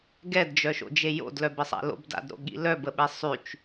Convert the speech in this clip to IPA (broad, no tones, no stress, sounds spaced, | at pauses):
ɡ ɛ d d͡ʒ œ ʃ o̰ d͡ʒ e j o̰ d l œ b ɪ sˤ a̰ l o̰ b d a̰ d ɾ o̰ ɠ ḭ l œ b ə ɓ e sˤ y t͡ʃ